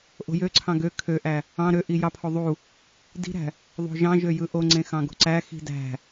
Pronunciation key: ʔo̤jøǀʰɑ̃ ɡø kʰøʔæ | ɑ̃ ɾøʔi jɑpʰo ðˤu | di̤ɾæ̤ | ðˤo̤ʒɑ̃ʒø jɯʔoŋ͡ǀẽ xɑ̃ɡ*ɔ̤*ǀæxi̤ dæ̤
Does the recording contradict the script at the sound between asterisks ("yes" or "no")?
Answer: yes